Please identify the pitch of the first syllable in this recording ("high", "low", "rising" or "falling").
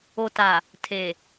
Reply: low